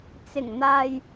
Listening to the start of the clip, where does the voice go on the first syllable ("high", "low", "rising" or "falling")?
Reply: low